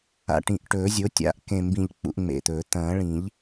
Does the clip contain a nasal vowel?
yes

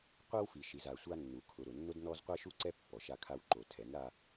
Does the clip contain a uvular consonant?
yes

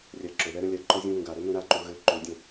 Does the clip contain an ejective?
no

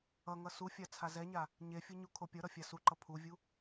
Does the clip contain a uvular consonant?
no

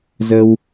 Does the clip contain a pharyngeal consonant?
no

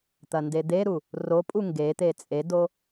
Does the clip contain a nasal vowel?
no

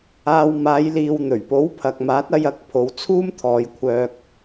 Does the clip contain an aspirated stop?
yes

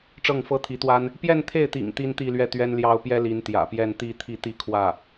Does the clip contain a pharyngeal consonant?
no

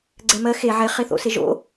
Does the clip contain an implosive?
no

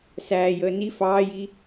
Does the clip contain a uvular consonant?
no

